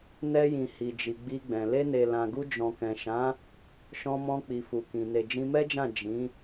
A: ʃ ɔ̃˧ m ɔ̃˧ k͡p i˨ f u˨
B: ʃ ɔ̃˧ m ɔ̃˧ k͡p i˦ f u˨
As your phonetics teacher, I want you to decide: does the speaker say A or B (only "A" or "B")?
A